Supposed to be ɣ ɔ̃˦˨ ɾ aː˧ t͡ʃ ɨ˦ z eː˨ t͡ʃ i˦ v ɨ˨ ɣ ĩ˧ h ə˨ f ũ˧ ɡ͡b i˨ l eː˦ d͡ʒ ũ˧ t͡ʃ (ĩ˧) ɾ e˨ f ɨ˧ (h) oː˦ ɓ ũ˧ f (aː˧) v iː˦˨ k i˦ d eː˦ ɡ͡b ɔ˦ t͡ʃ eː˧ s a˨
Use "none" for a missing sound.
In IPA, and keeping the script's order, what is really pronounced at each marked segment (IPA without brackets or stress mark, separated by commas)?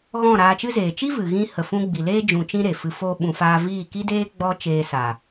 ĩ˦, f, aː˦